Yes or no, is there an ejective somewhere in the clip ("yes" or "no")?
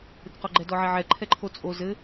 yes